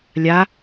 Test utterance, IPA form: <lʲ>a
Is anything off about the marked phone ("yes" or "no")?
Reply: no